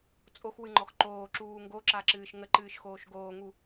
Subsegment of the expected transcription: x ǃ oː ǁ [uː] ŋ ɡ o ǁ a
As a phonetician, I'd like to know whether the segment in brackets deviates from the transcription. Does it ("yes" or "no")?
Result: no